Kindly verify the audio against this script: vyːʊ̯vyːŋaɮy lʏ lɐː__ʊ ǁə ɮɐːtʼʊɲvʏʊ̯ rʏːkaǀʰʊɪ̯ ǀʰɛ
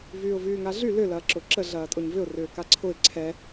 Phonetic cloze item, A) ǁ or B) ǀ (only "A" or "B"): A